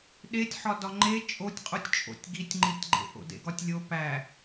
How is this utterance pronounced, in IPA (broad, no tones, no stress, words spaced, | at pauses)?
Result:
ɗetʲ ħɒdɒŋ͡ǃe t͡ʃʼotʲqʼutʲt͡ʃʼo̰tʲ ɡitʲŋ͡ǃitʲɡ͡ǃḛ ʔo̰dḛɡɒtʲlʲo pæ